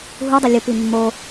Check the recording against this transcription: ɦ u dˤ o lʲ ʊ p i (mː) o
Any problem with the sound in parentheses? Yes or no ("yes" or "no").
no